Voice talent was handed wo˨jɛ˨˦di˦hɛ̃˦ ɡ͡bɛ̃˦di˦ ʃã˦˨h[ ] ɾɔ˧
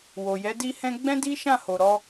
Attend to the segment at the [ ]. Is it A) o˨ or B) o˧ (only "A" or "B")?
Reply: A